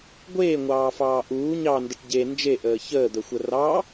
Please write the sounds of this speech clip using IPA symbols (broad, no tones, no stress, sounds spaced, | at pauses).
ɡʷ eː ŋʷ ɑː f ɑː ʔ uː ɲ ɑ n d ə ʈ ɟ e n d͡ʒ e ʔ əː ç əː d̪ ə xʷ ə r ɑ